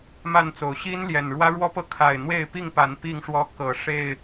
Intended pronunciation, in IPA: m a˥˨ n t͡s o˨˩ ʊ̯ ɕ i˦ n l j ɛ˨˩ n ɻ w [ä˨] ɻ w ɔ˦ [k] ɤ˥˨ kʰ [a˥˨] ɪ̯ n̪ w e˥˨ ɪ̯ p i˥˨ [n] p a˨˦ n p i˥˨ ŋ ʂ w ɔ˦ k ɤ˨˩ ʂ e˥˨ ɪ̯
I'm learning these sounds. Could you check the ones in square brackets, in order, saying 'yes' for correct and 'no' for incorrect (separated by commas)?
no, no, no, no